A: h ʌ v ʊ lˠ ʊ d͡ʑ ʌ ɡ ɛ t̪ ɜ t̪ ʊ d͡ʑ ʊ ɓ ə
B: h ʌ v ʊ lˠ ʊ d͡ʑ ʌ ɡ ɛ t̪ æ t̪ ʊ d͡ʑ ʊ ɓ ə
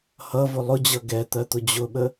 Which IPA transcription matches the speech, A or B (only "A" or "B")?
A